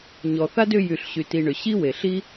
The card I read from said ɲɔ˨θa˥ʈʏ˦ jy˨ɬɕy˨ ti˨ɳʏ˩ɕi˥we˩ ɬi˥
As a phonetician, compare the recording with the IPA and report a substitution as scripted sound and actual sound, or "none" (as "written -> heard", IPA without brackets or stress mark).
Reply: ʈ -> d